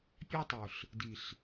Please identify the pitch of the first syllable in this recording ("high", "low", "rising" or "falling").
high